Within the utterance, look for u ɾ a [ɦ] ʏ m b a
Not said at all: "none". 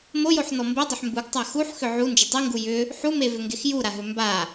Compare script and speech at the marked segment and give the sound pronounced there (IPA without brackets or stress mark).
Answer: ɦ